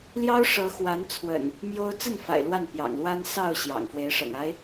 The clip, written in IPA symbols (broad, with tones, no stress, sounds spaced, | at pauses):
l j ɑ˦ ʊ̯ ʂ ɤ˨˦ x w a˨˦ n t͡sʰ w ə̰˨˩ n | m j o˦ ʊ̯ t͡s ə˥˨ n f a̰˨˩ ɪ̯ l w a˥˨ n p j ɑ̰˨˩ ŋ l w a˦ n s ɑ˥˨ ʊ̯ ɕ j ɑ̰˨˩ ŋ f w e˨˦ ɪ̯ ʂ ɤ̰˨˩ ŋ a˦ ɪ̯